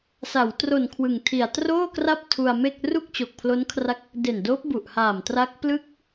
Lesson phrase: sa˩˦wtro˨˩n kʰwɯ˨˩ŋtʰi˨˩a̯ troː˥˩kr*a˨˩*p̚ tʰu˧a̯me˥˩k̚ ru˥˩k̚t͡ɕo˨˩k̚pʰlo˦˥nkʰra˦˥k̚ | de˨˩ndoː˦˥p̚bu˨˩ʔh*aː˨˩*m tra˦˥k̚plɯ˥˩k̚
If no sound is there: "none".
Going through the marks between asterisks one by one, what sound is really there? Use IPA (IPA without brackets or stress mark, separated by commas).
a˥˩, aː˨˩